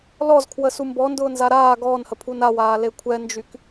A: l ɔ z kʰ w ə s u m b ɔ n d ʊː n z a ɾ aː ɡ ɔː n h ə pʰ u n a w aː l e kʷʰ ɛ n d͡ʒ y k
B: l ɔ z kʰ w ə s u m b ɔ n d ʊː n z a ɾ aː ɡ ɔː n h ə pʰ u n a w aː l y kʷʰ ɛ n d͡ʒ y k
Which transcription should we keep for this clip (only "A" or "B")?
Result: A